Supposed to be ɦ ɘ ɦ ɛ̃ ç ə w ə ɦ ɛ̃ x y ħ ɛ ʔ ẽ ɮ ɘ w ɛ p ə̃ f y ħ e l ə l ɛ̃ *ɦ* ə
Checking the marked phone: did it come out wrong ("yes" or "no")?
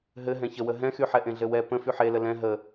no